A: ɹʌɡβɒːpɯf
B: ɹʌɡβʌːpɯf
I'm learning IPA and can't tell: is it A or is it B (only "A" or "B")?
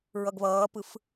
B